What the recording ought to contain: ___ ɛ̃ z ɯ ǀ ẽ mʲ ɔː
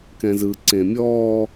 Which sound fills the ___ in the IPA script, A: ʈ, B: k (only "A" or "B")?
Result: B